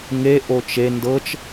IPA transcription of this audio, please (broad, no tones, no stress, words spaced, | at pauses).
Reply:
ŋe ʔot͡ʃe ndɤt͡ʃ